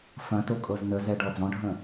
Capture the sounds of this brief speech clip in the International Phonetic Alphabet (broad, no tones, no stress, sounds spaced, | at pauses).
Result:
f ɐ̃ t o kʼ ɤ z n ə z ɛ ɖ ɔ d͡z ɔ̃ ɖʱ ə̃